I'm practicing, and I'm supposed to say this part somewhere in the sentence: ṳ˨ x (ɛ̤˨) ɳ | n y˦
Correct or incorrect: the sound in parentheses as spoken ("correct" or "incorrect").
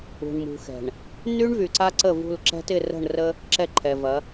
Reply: correct